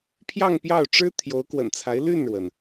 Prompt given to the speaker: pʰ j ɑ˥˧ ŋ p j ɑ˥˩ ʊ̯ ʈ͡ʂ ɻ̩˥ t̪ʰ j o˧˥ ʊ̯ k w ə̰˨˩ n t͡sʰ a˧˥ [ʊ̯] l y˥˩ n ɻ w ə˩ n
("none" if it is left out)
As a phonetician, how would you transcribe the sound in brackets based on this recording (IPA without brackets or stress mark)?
ɪ̯